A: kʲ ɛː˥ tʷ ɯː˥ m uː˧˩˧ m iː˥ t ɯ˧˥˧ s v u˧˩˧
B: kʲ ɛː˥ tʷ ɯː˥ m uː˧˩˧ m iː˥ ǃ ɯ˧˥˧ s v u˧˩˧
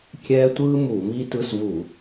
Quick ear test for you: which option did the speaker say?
A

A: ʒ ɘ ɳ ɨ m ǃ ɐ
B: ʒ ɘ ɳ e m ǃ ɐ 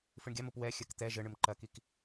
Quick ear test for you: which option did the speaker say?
A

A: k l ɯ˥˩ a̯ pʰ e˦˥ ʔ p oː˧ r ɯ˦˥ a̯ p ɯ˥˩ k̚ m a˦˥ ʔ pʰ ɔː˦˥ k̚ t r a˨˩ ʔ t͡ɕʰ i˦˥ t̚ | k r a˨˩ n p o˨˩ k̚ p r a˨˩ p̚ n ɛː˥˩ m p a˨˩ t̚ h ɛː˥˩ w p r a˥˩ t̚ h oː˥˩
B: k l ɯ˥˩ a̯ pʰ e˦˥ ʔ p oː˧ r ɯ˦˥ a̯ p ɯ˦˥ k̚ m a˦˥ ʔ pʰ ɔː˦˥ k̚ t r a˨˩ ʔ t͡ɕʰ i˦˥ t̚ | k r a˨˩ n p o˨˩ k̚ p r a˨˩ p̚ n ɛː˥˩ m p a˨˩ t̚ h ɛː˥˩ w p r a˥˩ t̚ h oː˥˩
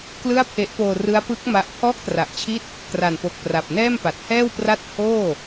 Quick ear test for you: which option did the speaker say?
B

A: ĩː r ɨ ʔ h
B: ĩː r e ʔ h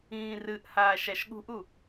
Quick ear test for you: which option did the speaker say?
A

